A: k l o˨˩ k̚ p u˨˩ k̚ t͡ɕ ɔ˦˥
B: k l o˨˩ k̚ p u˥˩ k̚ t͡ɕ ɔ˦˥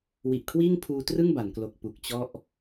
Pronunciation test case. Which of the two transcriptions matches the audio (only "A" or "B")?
A